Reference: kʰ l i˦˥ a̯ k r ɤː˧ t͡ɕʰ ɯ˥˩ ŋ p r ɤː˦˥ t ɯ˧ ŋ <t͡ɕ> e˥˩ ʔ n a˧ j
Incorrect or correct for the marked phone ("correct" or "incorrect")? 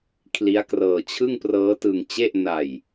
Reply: correct